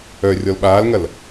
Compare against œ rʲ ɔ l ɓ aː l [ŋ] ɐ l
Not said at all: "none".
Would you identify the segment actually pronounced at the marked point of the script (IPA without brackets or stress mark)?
ŋ